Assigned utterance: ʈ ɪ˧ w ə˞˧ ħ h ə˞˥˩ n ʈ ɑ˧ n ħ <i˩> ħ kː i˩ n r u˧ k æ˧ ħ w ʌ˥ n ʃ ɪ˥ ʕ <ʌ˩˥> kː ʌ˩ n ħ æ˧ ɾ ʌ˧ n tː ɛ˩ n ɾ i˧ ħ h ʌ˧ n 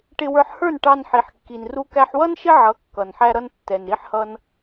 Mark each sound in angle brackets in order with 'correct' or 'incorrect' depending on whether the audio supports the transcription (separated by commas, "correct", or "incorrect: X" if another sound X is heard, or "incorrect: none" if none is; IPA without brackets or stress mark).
correct, correct